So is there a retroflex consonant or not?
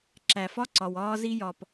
no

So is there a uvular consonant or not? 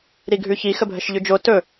no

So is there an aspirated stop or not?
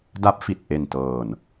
no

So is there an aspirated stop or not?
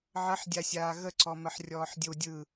no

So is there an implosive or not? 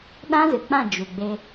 yes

